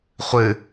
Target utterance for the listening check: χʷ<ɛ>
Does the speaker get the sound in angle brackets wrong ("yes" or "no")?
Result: yes